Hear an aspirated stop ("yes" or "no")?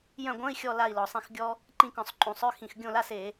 no